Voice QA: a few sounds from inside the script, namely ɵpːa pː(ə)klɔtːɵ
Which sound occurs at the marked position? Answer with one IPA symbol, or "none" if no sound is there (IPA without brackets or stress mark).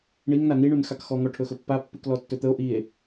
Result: ʉ